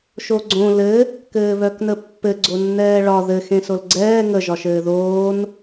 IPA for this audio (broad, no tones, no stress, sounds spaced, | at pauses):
ʃ o ɡ͡ǀ õ l ɘ | k ɘː β œ k n ə pː ɘ ɡ͡ǀ o nː ɛː ɭ ɒ ð ɘ x ẽ s o l ɡ͡ǀ ɛː ŋ ə ʒ ɒ ʃ ɘː ð oː n